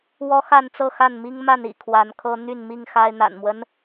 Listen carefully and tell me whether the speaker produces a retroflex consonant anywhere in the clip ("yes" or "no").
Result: no